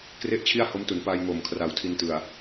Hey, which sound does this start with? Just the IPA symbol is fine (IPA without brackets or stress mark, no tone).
k